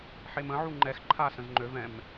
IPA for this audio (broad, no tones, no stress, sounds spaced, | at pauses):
ħ e m ə̃ ʕ u ŋ͡ǃ ɛ x ǃʰ a s ə̃ z ŋ͡ǃ ø v ɛ̃ m